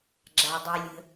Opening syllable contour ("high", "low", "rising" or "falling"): low